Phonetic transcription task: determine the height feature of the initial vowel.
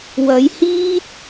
low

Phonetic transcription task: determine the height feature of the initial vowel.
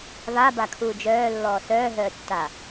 low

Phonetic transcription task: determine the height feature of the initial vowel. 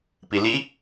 high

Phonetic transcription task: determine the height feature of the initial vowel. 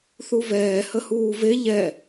high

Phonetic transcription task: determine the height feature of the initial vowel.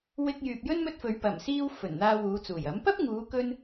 high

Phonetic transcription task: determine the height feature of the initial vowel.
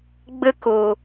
mid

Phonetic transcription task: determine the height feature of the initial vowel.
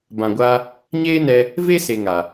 low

